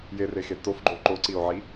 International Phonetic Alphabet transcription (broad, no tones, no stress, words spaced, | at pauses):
jerexe tofɡ͡ǃo ǃoǀio̯ʕi